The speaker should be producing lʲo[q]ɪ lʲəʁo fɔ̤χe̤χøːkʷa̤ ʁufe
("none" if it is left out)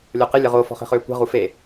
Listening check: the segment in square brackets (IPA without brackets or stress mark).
q